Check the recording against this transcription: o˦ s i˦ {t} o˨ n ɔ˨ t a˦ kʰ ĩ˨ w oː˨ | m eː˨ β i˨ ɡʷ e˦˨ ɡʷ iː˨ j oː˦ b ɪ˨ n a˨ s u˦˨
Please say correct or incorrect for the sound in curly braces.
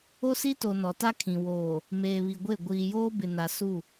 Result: correct